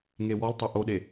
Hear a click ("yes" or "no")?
no